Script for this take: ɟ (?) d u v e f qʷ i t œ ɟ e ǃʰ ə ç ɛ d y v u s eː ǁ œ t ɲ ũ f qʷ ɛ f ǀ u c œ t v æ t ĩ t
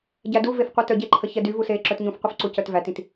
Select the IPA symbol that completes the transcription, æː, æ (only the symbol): æ